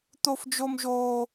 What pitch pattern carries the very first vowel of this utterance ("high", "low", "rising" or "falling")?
high